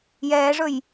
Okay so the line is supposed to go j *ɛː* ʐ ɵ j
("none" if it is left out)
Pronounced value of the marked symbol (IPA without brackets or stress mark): ɛː